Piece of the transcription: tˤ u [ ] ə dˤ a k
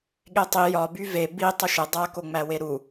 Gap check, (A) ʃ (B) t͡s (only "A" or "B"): A